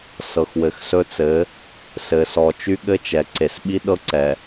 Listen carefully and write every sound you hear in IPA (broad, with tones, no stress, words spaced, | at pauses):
sɤ˨xwɘ˨xsɵ˦t͡sɘ˨˦ | sɘ˨sɔ˨ t͡ʃy˦ɠɘ˦t͡ʃɛ˨ǀe˨s ɓi˦ɗɤ˦ǀɛ˨